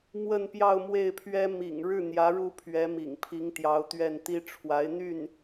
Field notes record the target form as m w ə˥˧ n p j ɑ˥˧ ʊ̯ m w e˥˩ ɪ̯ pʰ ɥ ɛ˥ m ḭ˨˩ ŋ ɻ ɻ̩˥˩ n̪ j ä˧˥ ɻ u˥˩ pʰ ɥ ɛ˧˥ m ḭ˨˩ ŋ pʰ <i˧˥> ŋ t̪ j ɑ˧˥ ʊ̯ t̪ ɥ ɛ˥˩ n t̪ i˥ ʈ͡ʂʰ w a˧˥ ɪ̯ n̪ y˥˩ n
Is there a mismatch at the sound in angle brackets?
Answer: no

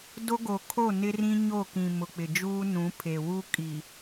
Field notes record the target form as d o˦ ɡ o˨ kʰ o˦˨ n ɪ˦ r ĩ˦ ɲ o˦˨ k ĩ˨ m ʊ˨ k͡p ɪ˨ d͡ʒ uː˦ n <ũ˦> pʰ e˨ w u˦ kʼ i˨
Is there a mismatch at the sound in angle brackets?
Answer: yes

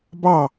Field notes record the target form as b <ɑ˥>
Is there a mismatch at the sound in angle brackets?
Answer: yes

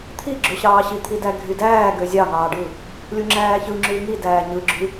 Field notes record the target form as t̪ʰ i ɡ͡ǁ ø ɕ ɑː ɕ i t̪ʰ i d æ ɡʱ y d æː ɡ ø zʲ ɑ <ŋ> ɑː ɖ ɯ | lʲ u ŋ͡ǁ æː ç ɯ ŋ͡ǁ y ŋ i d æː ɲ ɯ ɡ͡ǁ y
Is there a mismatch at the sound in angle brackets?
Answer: no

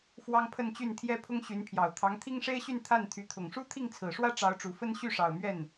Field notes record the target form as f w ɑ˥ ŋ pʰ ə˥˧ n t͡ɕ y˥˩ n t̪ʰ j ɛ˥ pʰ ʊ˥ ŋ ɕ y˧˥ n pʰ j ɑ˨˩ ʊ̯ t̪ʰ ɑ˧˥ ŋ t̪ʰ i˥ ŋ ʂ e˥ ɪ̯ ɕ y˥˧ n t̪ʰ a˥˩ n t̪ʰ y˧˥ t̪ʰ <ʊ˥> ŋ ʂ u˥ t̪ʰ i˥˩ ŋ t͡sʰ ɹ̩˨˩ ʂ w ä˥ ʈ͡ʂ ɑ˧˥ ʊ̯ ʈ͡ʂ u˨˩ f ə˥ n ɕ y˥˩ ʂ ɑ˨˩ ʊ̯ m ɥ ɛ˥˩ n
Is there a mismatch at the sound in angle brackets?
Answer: yes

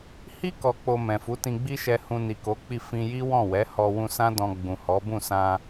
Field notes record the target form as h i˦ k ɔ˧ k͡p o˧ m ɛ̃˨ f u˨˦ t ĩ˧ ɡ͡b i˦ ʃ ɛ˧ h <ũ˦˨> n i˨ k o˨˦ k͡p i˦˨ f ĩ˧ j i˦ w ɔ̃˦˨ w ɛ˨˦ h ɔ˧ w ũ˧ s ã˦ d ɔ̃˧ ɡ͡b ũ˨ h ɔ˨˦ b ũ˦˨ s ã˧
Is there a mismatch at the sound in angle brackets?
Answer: yes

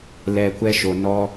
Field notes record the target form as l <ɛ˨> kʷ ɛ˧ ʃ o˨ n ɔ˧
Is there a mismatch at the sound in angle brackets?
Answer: no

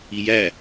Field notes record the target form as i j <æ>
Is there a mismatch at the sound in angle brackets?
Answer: no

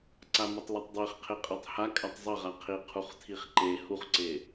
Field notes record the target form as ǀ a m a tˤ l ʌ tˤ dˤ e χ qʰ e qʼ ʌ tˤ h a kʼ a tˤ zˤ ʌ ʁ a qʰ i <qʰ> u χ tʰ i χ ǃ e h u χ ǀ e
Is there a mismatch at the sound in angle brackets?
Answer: no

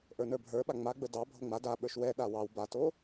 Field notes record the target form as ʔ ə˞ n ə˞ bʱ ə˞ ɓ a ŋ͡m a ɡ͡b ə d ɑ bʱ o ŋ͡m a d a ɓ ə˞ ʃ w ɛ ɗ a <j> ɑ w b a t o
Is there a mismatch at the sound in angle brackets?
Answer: yes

